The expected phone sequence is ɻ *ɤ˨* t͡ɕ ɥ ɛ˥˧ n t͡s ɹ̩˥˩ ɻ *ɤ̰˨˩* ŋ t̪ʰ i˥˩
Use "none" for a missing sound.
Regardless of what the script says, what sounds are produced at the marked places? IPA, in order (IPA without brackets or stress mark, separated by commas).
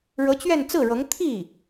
ɤ˧˥, ɤ˧˥